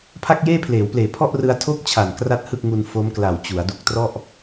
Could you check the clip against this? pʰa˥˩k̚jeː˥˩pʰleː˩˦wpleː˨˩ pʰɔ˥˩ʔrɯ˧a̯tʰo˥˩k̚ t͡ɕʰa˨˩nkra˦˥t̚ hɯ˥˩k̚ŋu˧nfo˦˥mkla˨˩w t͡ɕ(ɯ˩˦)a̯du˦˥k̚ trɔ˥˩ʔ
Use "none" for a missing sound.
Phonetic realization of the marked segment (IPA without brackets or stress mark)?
u˩˦